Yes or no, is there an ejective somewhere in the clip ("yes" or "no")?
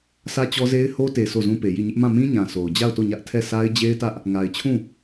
no